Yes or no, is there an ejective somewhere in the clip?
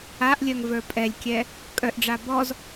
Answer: yes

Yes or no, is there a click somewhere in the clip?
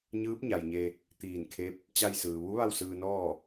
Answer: no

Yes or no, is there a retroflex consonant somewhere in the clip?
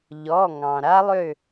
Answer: no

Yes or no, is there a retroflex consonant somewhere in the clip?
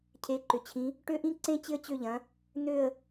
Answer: yes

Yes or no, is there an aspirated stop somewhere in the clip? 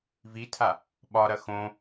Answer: yes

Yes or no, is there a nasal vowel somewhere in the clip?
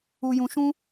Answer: yes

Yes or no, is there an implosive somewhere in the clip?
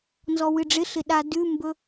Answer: yes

